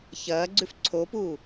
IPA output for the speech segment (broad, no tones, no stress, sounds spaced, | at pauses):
ç ɐː ɡ͡ǀ ʉ f ǀʰ o p uː